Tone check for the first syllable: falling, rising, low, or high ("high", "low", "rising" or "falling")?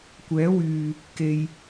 rising